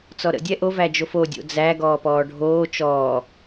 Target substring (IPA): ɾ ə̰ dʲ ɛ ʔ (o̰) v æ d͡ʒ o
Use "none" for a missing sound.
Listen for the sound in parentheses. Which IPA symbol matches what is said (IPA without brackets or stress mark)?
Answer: o